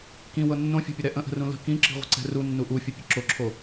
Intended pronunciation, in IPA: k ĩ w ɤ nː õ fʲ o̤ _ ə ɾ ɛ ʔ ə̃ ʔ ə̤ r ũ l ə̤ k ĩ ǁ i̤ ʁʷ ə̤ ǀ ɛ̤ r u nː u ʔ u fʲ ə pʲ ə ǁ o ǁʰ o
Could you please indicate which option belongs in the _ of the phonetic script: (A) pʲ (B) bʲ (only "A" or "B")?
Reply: A